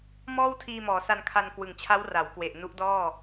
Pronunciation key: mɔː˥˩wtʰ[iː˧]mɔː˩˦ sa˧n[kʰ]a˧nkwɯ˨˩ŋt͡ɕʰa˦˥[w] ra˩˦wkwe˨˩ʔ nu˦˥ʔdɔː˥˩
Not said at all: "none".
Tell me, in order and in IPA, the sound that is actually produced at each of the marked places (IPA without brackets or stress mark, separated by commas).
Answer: iː˧, kʰ, w